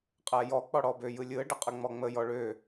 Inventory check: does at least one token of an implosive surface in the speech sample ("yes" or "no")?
no